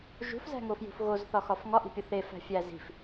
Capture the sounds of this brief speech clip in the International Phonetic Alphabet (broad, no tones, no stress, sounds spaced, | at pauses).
ʒ ṳ f z æ̤ ŋ o f j ṳ f ɣ o z θ ɒ x ɒ f ŋ ɒ ʔ i̤ pʲ o θ e f æ̤ fʲ æ z i̤ f